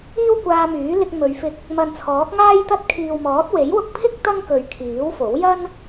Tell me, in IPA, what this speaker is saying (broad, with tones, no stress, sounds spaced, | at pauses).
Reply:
iː˥ w kʷ aː˧ m yː˨˥ l ɪ˧ k̚ m ɵ˨˧ ɥ f ɪ˧ k̚ | m ɐ˨ n t͡sʰ ɔː˨˥ k̚ ŋ aː˥ j t̪ ɐ˥ t̚ kʰ iː˨ w m ɔː˨˥ t̚ w e˨˥ j w ʊ˧ k̚ pʰ ɪ˥ k̚ t̪ ɐ˥ ŋ k ɵ˨˧ ɥ kʰ iː˨˥ w f o˨˥ w j ɐ˥ n